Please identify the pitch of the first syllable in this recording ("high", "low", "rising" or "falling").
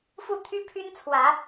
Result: falling